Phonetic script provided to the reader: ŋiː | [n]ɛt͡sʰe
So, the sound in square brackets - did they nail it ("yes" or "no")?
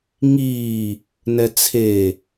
yes